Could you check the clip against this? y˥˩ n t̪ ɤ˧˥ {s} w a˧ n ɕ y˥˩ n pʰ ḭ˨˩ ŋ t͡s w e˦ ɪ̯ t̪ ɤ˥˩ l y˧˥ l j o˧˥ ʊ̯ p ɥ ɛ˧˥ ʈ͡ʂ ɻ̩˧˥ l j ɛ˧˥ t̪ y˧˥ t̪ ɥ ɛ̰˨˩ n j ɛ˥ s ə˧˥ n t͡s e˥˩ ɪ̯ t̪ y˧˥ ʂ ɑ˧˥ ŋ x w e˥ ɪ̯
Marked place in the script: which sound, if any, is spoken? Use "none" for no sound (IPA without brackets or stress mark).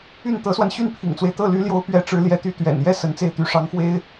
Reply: s